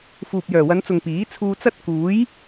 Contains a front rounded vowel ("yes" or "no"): yes